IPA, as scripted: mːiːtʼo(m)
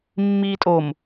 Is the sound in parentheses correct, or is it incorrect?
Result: correct